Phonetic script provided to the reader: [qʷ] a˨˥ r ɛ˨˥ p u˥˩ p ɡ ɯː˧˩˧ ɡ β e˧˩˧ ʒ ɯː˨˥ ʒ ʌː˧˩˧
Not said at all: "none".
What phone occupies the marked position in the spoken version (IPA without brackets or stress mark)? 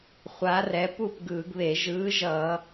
χʷ